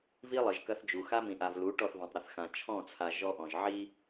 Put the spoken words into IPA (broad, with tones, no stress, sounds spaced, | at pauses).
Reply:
v i˦ lˠ ɘ˨ ʒ k ɐ˦ θ d͡ʒ u˨ x a˦ m ĩ˨ ʔ a˨ v l u˨˦ ʈ ɔ˦˨ θ v ã˨ tˤ ɾ ɐ˨ θ x ã˨ t͡ʃʰ ɔ̃˦˨ t͡sʰ a˨ ʒ ɔ˦ ʔ ɔ̃˨ ʒ ʕ i˦